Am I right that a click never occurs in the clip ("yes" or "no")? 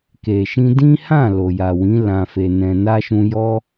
yes